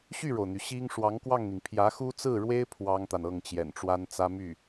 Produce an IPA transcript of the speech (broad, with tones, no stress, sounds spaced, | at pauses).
ɕ y˥˩ ɻ o˩ ʊ̯ n̪ y˩ ɕ i˥ ŋ ʂ w ɑ˧˥ ŋ k w ɑ˥˩ ŋ n̪ i˩ ŋ pʰ j ä˧˥ x u˥ t͡s ɹ̩˥˩ ɻ w e˥ ɪ̯ pʰ w ɑ˥ ŋ t̪ a˨ n ɤ˥˩ ŋ t͡ɕ j ɛ̰˨˩ n ʈ͡ʂ w a˥ n t͡s ä˥ m y˥˩